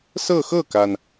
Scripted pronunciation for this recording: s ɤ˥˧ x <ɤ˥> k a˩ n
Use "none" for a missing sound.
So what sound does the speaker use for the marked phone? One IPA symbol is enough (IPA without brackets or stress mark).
ɤ˥˩